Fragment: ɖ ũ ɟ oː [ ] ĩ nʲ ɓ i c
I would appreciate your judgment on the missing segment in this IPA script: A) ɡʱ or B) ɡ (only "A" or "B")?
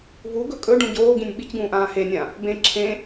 B